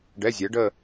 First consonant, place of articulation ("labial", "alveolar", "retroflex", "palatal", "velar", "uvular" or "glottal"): retroflex